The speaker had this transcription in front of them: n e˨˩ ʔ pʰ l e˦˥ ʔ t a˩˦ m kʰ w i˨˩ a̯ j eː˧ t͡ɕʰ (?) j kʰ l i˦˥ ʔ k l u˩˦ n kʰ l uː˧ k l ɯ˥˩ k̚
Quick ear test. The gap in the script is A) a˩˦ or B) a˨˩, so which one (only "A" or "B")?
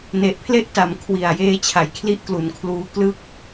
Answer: A